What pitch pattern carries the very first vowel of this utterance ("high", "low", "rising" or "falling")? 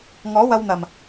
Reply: rising